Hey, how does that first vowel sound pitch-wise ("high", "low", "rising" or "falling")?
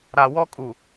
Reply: low